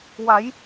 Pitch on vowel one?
rising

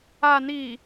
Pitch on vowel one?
low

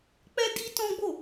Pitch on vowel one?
high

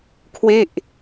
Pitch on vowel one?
falling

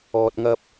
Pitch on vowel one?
low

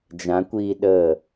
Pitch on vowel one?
rising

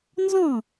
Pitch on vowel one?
falling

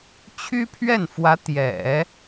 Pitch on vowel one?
high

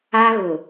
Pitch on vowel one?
high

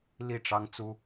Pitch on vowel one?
falling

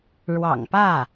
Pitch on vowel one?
low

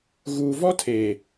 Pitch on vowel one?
low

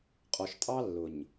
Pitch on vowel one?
low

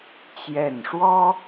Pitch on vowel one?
falling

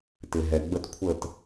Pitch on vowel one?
low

